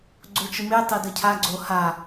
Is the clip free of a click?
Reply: no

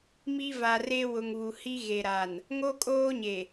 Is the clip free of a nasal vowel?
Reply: yes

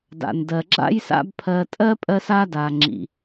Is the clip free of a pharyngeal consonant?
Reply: yes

